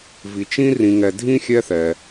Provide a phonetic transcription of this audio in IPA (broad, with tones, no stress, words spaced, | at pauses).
vi˨ t͡ʃĩ˦rĩ˨ŋɛ˨ dʱĩ˥xʲɛ˦θɛ˩